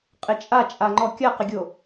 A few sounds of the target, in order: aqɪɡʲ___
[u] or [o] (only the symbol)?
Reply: o